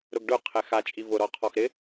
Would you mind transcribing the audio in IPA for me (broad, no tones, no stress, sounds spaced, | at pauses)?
ɾ ʊ ɡ ɖ ʊ qʰ ɛ x a t͡ʃʼ i v ʊ ɾ ɔ qʰ ɔ x ɾ ɪ